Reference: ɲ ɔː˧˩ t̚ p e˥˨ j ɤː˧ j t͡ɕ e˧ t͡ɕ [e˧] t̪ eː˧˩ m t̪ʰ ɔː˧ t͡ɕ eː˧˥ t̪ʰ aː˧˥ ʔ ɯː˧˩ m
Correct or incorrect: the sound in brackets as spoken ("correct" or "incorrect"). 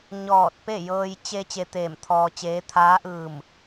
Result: correct